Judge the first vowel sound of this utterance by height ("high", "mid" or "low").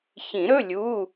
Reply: high